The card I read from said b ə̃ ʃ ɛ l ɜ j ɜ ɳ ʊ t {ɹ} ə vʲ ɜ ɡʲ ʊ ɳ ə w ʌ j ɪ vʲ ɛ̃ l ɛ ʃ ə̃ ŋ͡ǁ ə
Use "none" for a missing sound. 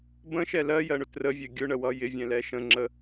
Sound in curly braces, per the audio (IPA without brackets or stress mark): r